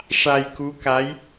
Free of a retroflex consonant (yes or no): no